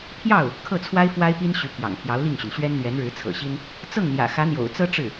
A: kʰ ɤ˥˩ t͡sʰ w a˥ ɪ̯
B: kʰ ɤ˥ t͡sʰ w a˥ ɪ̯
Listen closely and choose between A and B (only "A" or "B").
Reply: A